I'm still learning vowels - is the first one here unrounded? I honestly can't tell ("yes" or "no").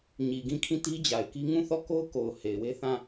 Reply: yes